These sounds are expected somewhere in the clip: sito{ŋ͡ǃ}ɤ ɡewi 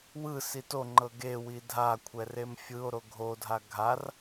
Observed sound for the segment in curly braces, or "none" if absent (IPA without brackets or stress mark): ŋ͡ǃ